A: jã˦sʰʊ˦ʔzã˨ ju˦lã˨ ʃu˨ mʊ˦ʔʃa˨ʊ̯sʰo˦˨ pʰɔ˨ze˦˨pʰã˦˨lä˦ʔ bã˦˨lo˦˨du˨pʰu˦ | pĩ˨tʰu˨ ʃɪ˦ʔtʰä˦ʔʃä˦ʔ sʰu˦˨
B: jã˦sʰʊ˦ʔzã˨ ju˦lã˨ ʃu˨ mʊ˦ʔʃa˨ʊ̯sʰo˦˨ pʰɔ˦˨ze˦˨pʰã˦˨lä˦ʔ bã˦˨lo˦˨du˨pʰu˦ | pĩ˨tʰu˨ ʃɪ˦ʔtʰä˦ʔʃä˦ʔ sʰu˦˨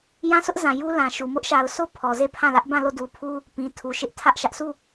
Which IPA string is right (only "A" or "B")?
A